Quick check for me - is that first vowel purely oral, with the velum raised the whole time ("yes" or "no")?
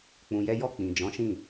no